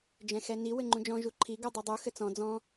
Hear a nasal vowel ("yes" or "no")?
yes